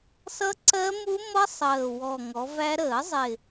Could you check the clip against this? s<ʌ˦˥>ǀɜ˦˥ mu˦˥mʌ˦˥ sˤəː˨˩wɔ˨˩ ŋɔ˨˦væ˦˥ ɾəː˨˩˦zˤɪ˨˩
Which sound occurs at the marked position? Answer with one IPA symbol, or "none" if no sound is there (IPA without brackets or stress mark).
ʌ˦˥